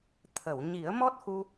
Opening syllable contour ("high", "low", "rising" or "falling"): low